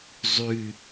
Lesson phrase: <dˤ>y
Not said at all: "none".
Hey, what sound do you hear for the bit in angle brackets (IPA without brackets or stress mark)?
zˤ